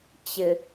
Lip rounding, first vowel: unrounded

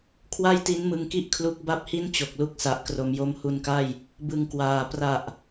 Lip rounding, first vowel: unrounded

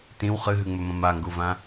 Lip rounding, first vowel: unrounded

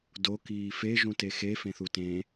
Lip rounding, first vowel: rounded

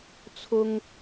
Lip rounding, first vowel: rounded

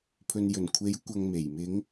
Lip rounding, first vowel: rounded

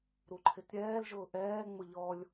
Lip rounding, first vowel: rounded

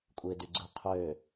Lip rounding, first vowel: unrounded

